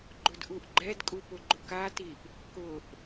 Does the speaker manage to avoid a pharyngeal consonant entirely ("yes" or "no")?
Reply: yes